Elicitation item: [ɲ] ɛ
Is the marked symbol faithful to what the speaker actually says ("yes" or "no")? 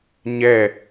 yes